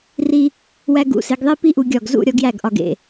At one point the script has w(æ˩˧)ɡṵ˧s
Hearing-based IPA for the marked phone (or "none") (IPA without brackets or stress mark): æ˧